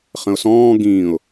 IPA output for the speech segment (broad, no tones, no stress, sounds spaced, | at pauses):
χ ə̃ ʊ̯ s ɔ̃ː ɡ ĩː ʊ̯